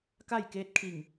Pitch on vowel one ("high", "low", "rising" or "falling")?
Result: falling